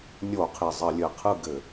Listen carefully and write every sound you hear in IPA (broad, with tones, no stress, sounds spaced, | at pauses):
nʲ o˧˩˧ qʰ i˨˩ zˤ ɘ˧˩˧ lʲ ɘ˨˩ qʰ ɯ˥˩ ɡ ɘ˧˩˧